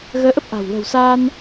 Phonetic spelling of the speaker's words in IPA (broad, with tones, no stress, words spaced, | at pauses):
ɣəː˧ʔə˦˥p̚ʔa̤˨˩w lə̤˨˩wsaː˧n